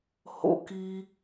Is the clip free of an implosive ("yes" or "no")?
yes